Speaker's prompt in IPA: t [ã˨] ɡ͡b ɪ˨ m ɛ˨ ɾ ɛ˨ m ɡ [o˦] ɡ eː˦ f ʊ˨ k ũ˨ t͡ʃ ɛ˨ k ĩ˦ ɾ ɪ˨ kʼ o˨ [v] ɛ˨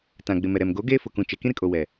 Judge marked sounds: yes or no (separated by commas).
yes, no, no